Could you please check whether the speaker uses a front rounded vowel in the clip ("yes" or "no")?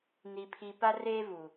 no